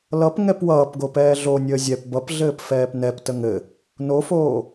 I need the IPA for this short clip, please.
lʌp ŋɛpwʌːpɡo pɛːɮonʲəː zʲɛp bʌpɮɘːp fɛːpnɛptə ŋɘ | nofoː

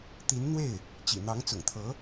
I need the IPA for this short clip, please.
t̪i˧˥nn̪we˥˩ɪ̯ | t͡ɕḭ˨˩n̪ɑ˧˥ŋ t͡sʊ̰˨˩ŋt̪ʰɤ˧˥

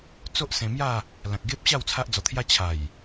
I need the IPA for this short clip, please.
t͡so˦ʔsẽ˧mja˥˧ | lã˨k̚ɡe˦p̚ɕa˥˧w t͡sʰa˦ʔd͡zɔ˧t̪ʰja˦ t͡ɕʰa˨˩j

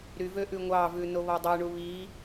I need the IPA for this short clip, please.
ɾyvø ʔʉŋʷɑvʉ noβɔdˤøɳu βi

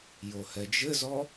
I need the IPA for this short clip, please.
johɛd͡ʒɘzɔ

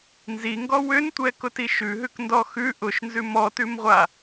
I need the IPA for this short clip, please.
nziŋɡɔ wʏntʷɛkʊti ʃʉɦʉkndɔ xʉ ʔʊʃnzʉ mɔtʉmʁʷa

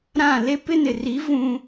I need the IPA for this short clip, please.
ɾã˦˨ le˦pɪ˦nɪ˨ri˨˦ vũ˦

